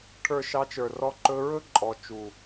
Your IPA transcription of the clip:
ʈʰ ə˞˨ ʃ ɑ˧ t͡ʃ ə˞˨ r ɔ˧ ǃ ɵ˧ ɹ ɵ˦ ǃʼ ɔ˨ t͡ʃ u˨

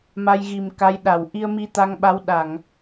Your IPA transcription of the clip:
m a˧ j ɣ i˨˩ m k a˨˦ j ɗ a˧˩ w ʔ i˧ ə̯ m i˧ t̪ a˧ ŋ ɓ a˨˦ w ɗ a˧˩˨ ŋ

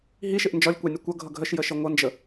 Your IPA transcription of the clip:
ɦ i ʃ ɪ ʔ n d͡ʒ ɒ lʲ kʷ ɑ nʲ ʌ kʷ ʌ ɡʱ ʌ ɡʱ ə ʃ j ə ʃ ə ŋʷ ʌ n d͡ʒ ə

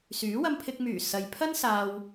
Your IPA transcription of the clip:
s yː˨˥ w ɐ˧ m pʰ ɪ˧ k̚ m yː˨˩ s ɐ˨ j pʰ ɐ˥ n s aː˧ w

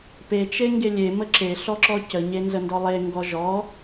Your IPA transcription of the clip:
p e t͡ʃ e ŋ ɡ e lʲ e m ə ǁ e ɬ ɔ ǁ ɔ c ə ɲ e n z ə n d ɔ lˠ e ŋ ɡ ɔ ʒ ɔ

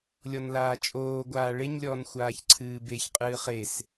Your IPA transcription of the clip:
lʲ ɔ n l aː t͡ʃʼ oː ɡʷ aː ɭ e ɲ lʲ ɔː n xʷ aː ç ǀʰ ɨː b e ç qʼ ɨː χ e s

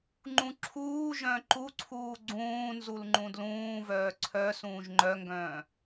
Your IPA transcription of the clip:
ŋ͡ǃ ũ ǁʰ uː ʒ œ̃ ǃ u ǀʰ uː ɡ͡ǀ ũː n z u l ŋ͡ǃ ũ d l ũː v œː ǀʰ œ s ũː ʒ ŋ͡ǃ œ ŋ ɡ œ̃ː

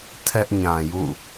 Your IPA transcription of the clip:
tʰ ɛ˦ ʔ ɲ ã˨ j ṵ˦˨

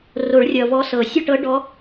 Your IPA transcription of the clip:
r o˨˩˦ ɭ rʲ ʌ˨˩ v ɔ˧˥ s ɤ˨˩˦ sʲ ʌ˥˧ ʈ ɤ˧˥ ɖ ɔ˧˥

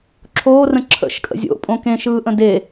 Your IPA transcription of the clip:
ǁʰ oː r ə̃ ǁʰ ə̰ ʃ kʼ ə̰ zʲ o̰ pʼ õ k ẽ ʃ ɯː ʔ ə̃ d e

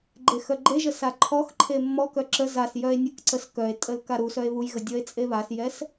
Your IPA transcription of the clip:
ɡ͡ǃ e x œ ɡ͡ǃ e ʒ ə s a ǃʰ ɔ x ǃʰ e mː ɔ k œ ǁ ə z a s j œ e̯ nʲ ə k ǀ ə s k œ e̯ tʼ ə l k a ɾ u s œ e̯ β u j ɣ ə dʲ ɔ e̯ t͡sʼ e β a s j ɛ s

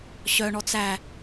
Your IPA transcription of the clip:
ɕ œ ɳ ɔ t͡s æ

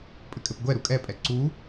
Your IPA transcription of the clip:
pʼ ɘ kʼ ɘ p ɡʷ ɛ ɾ u kʼ ɛ pʼ ɛ ǀ u

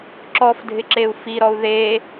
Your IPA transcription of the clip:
ǁ ɔ f dʱ ɪ ǁ e u̯ f i ɾ ɔ u̯ ð e

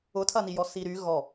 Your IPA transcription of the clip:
ʊ tʰ ɐ n i j ɔ s i ɾ y ɣ ɔ

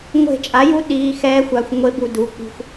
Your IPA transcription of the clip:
ŋʷ e̤˧˩ t͡ʃʼ a˩˥ j u˧˥ ɗ iː˩˧˩ x ɛː˧˥ xʷ a˩˧˩ xʷ ŋʷ e˧˥ b u˧˩ d u˩˧˩ k͡p i̤˧ xʷ

